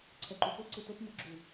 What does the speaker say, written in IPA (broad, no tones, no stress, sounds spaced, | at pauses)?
ǀʰ ɛ ǃ u p o ǀ ɯ t o p m ɯ ɡ͡ǁ u